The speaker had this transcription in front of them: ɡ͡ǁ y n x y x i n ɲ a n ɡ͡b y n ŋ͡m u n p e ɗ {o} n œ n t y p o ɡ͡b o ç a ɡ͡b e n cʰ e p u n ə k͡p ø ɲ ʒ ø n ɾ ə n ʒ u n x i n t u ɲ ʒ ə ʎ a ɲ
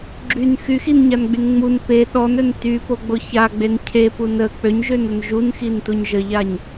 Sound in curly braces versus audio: incorrect: ɔ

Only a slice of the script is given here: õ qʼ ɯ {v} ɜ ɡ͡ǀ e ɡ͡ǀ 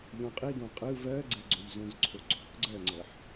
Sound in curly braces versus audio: correct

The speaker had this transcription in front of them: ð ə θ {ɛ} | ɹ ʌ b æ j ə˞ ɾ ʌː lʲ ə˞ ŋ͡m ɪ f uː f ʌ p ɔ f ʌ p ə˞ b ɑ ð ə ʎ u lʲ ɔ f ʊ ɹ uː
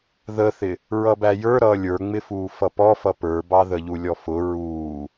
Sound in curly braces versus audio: incorrect: ɪ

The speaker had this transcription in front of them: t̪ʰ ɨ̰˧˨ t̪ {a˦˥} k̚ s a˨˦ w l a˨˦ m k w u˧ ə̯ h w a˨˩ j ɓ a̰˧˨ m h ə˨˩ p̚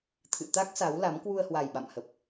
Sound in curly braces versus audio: correct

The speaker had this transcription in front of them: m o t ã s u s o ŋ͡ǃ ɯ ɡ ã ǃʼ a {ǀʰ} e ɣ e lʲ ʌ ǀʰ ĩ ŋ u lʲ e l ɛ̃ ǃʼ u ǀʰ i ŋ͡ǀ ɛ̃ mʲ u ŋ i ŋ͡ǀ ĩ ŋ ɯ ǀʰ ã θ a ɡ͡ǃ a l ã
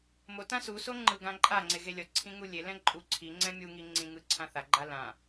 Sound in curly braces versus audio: incorrect: ŋ͡ǀ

